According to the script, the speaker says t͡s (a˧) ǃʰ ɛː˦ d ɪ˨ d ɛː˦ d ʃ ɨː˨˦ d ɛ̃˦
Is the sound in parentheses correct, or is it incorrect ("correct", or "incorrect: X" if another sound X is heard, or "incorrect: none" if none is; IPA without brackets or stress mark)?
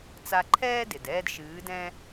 correct